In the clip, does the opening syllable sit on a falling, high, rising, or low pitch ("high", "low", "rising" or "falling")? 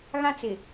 high